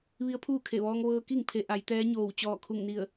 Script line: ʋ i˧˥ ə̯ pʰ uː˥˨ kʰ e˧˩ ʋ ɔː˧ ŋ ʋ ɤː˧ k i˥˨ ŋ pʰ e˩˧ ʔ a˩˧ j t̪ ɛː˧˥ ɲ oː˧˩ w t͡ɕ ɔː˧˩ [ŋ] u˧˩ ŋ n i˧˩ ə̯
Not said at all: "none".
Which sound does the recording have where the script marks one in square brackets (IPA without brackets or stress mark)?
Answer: kʰ